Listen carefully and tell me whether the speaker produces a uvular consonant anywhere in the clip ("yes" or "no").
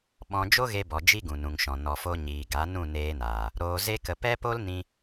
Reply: no